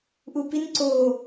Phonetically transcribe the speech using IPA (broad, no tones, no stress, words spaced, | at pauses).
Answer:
ʔupin ǀo